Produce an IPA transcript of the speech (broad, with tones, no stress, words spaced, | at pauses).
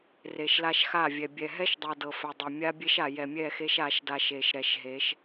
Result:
re˨ʃla˦ʃxa˦˨vʲɛ˨ bʲɛ˨ɦɛ˦ʃdˤɤ˨ dɤ˨fɛ˨dˤɤ˨ mʲa˦bʲe˦ʃa˨ jɛ˨mʲɛ˦˨xe˦ʃ a˦ʃda˦ʃe˨ʃ ɾɛ˨ʃɦe˨˦ʃ